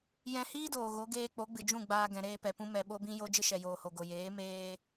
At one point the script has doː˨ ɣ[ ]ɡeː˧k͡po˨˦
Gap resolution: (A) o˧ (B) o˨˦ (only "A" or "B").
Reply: B